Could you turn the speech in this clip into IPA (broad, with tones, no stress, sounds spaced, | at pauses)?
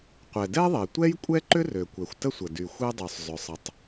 qʷ ɛ˩ d ɛ˥ ðˤ e˩ tʷ ɛ˥ j kʷʼ ɛ˥ ǃ ʏ˥ r ø˩ kʷ ɛ˩ xʷ t ə˥ sʷ ə˩ d y˩ xʷ e˥ dˤ y˩ sˤ zˤ ʏ˩ sˤ ə˩ tˤ